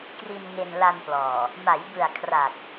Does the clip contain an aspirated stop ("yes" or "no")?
yes